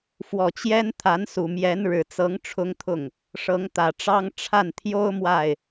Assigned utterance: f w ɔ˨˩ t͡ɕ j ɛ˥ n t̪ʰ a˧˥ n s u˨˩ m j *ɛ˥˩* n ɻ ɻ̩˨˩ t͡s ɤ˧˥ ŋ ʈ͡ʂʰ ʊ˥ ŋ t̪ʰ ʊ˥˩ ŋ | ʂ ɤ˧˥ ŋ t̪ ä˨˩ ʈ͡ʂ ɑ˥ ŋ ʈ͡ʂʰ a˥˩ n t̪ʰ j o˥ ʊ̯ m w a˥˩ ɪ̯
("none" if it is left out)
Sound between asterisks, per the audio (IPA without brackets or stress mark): ɛ˧˥